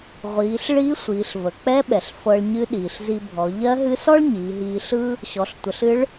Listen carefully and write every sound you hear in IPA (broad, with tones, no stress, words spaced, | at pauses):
ʁʷiː˩˧ɬ ɭiː˧˥sʷiː˩˧ɬ və˩k͡pɛ˧˥ɓɛ˩ɬ fɤ˧ɭɲɨ˧˥ɗiː˩ɬ zi˧bʱɔ˩˧ ʎɜ˧˥ɦɨ˧˥sɔ˥ɭ ɲiː˩˧ɦiː˧ɬɯ˥ | ɕɔ˩˧ɬtʷə˩˧ɬ ɨ˧˥ɭ